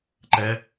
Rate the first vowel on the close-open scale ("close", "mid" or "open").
mid